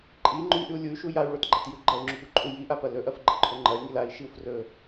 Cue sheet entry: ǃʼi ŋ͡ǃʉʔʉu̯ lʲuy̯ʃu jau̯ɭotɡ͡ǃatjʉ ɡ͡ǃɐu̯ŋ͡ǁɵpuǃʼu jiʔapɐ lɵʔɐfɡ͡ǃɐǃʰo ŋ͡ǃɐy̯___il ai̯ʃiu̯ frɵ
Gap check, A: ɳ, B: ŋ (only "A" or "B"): B